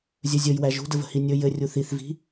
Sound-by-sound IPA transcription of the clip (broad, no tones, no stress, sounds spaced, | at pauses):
zʲ ɵ zʲ ɵ j w æ ʒ ṳ d ə v ə̤ h i nʲ ɵ j ɘ rʲ u θ i θ v i̤